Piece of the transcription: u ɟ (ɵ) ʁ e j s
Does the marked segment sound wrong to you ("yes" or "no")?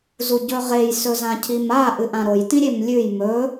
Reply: no